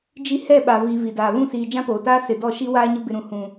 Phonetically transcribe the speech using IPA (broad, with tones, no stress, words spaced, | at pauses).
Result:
d͡ʒi˦ hɛ˦˨ɓa˨vi˨ vi˨daː˨ βũ˦˨siː˨ d͡ʒã˦poː˨taː˦ sɪ˨ dɔ˦˨ʃi˦waː˦ɲʊ˦ bɪ˨ɾũ˨hũ˨